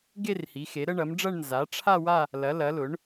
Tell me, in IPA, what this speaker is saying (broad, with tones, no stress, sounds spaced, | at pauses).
ɡ e˥˧ r h i˩˥ x e˩˥ ɾ ə˥˧ ɳ ɐ˩˥ m ɖ͡ʐ ɐ˥˧ ɳ n z a˩˥ ʈ͡ʂʰ a˥˧ w a˥˧ | l ɐ˩˥ l ɐ˩˥ l ʊ˩˥ ɳ